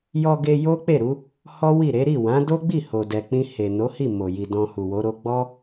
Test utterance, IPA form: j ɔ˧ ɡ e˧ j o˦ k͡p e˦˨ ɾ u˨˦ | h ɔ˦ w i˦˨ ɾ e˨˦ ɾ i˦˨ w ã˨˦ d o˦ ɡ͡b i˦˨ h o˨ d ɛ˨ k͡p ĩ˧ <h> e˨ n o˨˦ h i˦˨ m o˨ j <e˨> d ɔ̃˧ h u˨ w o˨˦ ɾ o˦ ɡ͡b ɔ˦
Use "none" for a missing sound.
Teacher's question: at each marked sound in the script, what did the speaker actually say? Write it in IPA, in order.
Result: h, i˨

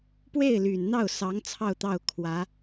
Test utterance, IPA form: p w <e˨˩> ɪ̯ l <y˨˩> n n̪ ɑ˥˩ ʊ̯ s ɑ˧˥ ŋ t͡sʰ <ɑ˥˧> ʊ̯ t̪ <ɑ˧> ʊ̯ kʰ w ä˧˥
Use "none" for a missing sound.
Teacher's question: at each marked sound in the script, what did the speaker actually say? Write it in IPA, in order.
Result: e˥˩, y˨˩, ɑ˥˧, ɑ˥˩

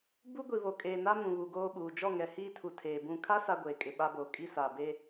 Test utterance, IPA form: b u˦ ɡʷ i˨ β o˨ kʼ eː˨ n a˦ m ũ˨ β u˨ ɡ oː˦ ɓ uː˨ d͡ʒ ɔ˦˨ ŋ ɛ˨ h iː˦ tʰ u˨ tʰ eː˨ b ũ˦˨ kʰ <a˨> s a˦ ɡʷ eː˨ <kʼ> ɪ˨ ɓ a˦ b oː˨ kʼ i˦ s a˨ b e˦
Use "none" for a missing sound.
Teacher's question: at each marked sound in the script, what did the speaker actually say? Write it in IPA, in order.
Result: a˦, kʼ

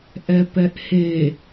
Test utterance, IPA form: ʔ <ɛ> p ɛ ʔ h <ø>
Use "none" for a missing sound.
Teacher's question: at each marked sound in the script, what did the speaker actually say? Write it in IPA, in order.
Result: ɛ, e

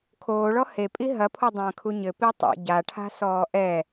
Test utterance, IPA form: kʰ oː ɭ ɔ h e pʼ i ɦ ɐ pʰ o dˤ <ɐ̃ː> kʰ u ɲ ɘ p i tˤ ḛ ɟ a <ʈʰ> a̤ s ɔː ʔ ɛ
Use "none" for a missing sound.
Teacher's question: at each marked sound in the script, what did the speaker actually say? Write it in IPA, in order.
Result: ɐ̃ː, ʈʰ

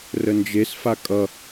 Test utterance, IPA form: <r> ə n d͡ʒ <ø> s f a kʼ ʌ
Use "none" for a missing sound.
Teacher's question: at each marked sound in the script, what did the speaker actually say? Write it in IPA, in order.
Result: r, e

